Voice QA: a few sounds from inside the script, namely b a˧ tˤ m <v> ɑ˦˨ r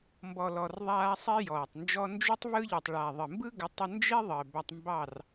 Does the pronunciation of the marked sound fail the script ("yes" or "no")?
yes